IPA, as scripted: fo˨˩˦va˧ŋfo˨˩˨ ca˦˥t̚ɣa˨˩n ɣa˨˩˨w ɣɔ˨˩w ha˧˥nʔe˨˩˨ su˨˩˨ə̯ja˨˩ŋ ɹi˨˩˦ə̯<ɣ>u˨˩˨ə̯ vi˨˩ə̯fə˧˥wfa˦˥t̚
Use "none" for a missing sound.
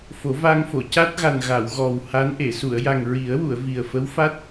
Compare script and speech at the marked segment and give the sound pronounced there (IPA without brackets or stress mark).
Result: w